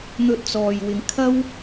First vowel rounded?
yes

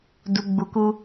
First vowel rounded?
yes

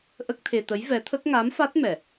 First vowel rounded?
no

